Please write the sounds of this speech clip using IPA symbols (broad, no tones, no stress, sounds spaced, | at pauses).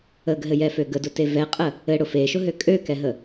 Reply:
ə ɡ ɦ ɘ j ɛ f ø ɡ ə d ʊ t e v ɛ qʼ ə | ɘ ɽ ʊ f e ʃ ʊ ɦ ø kʼ ø k ɛ ɦ ə